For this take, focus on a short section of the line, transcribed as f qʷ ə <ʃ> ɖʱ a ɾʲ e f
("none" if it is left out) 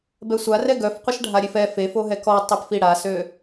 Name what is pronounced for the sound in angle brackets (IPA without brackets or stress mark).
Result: ʃ